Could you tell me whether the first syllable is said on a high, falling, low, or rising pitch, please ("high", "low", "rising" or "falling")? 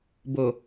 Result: low